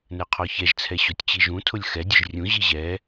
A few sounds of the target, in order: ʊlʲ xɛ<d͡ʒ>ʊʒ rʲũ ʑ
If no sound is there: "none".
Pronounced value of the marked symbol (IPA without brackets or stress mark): dʲ